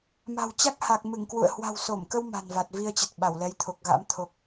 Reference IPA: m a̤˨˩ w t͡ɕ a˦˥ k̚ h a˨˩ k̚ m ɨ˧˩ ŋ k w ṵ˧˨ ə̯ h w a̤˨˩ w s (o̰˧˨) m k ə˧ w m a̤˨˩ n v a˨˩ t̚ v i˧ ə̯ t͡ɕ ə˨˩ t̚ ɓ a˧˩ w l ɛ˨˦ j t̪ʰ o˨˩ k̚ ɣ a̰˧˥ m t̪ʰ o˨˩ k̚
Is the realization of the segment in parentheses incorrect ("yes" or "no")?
yes